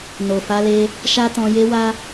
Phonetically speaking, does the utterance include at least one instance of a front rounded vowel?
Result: no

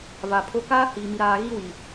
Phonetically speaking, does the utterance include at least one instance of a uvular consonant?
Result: no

